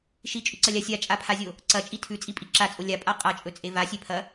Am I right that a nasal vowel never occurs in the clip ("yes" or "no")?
yes